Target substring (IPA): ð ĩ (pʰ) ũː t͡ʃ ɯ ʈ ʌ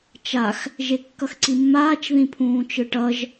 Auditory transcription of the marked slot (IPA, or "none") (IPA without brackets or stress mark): pʰ